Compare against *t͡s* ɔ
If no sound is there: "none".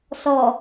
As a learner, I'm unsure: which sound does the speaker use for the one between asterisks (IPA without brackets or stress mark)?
s